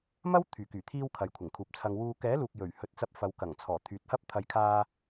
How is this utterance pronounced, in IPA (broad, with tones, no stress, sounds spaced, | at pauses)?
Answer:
m ɐ˥ w t̪ʰ yː˨˩ k yː˨˩ t̪ʰ iː˧ w kʰ ɐ˨˧ j kʷʰ ɪ˨˩ ŋ kʰ uː˨ p̚ t͡sʰ ɐ˧ ŋ w uː˨ k ɛː˨˥ l uː˨ k̚ j ɵ˨˩ ɥ h ɵ˨˥ t̚ t͡s ɐ˧ p̚ f ɐ˨˧ w k ɐ˨˩ ŋ t͡sʰ ɔː˨˩ t̪ʰ yː˨˥ t̚ h ɐ˥ p̚ t̪ʰ ɐ˨˧ j kʰ aː˧